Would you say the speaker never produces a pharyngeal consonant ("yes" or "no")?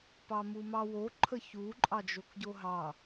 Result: yes